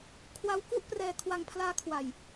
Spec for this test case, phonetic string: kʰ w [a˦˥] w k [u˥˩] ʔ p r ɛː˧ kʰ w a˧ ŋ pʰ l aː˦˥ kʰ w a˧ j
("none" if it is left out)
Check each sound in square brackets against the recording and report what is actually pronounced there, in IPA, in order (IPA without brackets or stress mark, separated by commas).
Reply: a˧, u˥˩